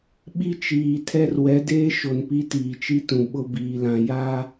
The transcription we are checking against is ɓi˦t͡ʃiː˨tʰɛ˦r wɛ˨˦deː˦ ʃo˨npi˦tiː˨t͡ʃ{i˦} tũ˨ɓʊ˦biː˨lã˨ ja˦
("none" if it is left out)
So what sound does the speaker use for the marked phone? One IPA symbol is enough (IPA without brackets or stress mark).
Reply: i˦